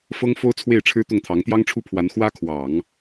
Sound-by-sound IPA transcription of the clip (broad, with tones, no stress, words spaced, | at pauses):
fɤ˥ŋfo˥ʊ̯ t͡sʰwe˥˩ɪ̯ʈ͡ʂʰɻ̩˥t̪ʊ˥˩ŋt̪ʰɑ˧˥ŋ t̪jɑ˥ŋʈ͡ʂʰu˥pʰwa˧˥n xwä˥kʰwɑ˨˩˦ŋ